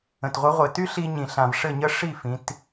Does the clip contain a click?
no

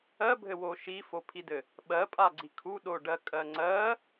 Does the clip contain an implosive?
yes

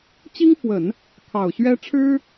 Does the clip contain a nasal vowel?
no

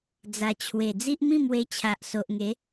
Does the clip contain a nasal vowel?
yes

